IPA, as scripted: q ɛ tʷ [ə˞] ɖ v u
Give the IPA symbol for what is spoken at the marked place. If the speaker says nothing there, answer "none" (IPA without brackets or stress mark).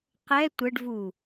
ə